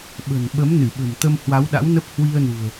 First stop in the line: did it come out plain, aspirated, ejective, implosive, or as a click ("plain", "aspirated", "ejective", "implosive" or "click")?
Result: implosive